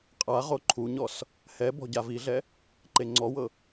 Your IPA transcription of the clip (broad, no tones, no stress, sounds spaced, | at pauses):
qʼ a ʁ o ǃʰ u ɲ ɔ s | h ɛ b ɔ̤ ɟ a v i ɮ ɛ | ǃ e ŋ͡ǀ ɔ w ɤ